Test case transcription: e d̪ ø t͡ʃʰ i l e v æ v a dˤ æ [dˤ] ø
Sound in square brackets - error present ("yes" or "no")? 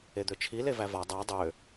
no